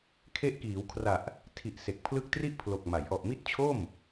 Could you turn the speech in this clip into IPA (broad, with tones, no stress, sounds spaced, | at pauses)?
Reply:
kʰ e˦˥ ʔ k iː˩˦ w kʰ r a˨˩ ʔ | tʰ i˨˩ ʔ s e˨˩ k̚ pʰ l ɯ˦˥ k̚ t r i˥˩ ʔ pʰ l o˨˩ k̚ m a˩˦ j ʔ ɔ˨˩ ʔ m i˥˩ t̚ t͡ɕʰ o˥˩ m